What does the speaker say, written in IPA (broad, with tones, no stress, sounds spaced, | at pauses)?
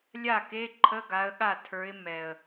lʲ a˥˩ k e˧˥˧ ǃʰ ə˧˥˧ ɡ a˨˦ ə̯ ɠ a˥˩ tʰ ə˞˨˦ ɪ̯ m ɛ˨˩ ə̯